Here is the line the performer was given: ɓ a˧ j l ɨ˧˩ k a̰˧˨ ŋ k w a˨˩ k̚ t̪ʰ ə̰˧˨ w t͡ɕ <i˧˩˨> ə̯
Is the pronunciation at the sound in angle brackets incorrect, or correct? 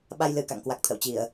correct